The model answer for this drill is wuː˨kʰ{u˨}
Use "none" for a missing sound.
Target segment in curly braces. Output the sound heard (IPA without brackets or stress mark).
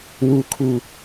u˨